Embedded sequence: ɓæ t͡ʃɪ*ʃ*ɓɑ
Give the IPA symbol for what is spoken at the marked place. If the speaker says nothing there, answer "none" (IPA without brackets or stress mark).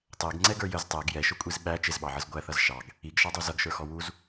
z